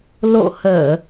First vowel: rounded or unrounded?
rounded